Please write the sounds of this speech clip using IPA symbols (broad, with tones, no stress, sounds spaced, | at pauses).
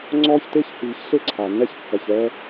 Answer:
ŋ͡ǀ ɔː˦ ç t e˦ ç h iː˨ ç ɬ e˦ ǀʰ a˨ nː ɛ˦ ç kː ɐ˨ ç ɛ˦